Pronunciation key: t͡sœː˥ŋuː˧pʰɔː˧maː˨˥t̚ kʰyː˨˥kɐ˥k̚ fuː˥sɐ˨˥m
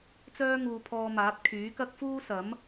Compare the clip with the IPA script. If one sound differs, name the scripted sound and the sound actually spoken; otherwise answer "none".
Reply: none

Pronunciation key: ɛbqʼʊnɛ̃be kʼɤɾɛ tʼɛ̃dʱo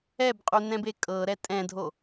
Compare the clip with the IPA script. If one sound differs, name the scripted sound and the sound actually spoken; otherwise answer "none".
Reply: ʊ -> u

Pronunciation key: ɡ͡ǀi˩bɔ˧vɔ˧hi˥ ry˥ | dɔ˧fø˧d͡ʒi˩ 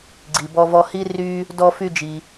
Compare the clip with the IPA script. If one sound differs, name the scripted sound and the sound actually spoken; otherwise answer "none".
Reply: ø˧ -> y˧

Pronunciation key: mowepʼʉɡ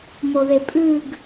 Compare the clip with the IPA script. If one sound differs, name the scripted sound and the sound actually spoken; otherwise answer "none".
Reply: w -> ð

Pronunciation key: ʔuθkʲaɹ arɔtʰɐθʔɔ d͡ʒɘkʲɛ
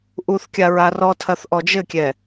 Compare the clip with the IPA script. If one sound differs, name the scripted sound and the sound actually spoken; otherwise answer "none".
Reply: none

